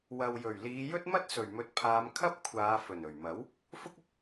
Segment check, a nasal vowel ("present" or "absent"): absent